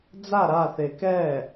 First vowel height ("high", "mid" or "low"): low